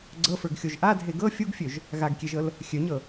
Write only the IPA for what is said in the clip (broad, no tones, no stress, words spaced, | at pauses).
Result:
ɡ͡ǀɤfə˞ɡxʲoʒ ʔadʱe ɡɤ fʲuɡfʲøʒ | ɣaɡkʲeʒɤl | xʲøɲɤ